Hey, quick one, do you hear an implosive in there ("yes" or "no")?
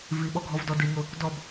yes